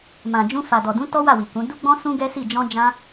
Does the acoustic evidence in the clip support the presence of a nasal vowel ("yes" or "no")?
yes